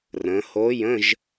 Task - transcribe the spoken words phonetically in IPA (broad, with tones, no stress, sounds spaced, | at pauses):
r ə̃˩˧ h o˧˥ j ə̃˧˥˧ ʒ